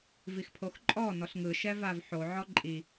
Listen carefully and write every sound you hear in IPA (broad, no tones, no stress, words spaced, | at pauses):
vixpʰoxǃʼɔ nɔɬŋɯ ʃɛvavħo ʕɔǃʼi